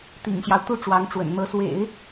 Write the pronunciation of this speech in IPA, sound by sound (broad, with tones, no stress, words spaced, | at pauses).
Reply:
t̪ḭ˨˩ŋɕjɑ˦ʊ̯ t̪u˥˩ʈ͡ʂwɑ˧˥ŋʈ͡ʂwə̰˨˩n n̪ɤ˧˥swḛ˨˩˦ɪ̯